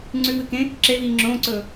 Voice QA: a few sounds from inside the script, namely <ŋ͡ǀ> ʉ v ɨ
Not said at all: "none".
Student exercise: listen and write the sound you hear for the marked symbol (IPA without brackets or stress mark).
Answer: ŋ͡ǀ